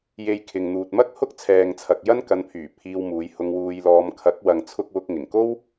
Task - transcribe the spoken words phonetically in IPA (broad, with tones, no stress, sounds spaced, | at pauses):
j e˧ j kʰ ɪ˨ ŋ n̪ uː˨ t̚ m ɐ˥ k̚ h ʊ˥ k̚ t͡sʰ ɛː˨ ŋ t͡sʰ ɐ˨ k̚ j ɐ˥ n k ɐ˨˧ n pʰ yː˨˩ pʰ iː˧ w m uː˨˧ j h ʊ˧ ŋ w uː˧ j l ɔː˧ m kʰ ɐ˨˥ k̚ w ɐ˨ ŋ t͡sʰ ʊ˥ k̚ w ʊ˧ k̚ ŋ ɪ˨˩ ŋ k o˥ w